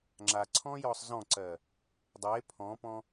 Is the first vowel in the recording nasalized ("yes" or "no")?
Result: no